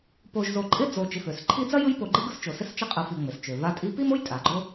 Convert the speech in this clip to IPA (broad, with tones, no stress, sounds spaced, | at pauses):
p o˨ ʒ z o˨ ǃʼ ɪ˦ d͡z o˨ t͡ʃ ɪ˨ f ø˩ s ǃʰ i˦ d͡z ɐ˥ j ɯ˦ j p o˨ ɡ͡ǃ ɯ˦ ɡ ɯ˦ s t͡ʃ o˩ s ɪ˦ s t͡ʃ ɪ˦ qʼ ɯ˨ f i˨ ŋ͡m ɪ˩ s t͡ʃ ø˩ v a˦ tʼ i˦ p i˥ m o˥ j tʼ a˩ ɡ͡ǃ o˦